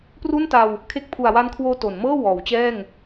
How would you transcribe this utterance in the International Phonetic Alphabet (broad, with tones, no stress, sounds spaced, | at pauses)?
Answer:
p r u˥˩ n t a˧ w | kʰ e˦˥ k̚ pʰ u˨˩ a̯ w a˦˥ n kʰ w oː˧ t o˩˦ n m ɤː˥˩ w ɔː˩˦ w t͡ɕ ɛː˥˩ ŋ